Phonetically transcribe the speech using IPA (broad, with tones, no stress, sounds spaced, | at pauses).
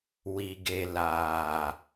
w i˨ ɡ e˨ l aː˨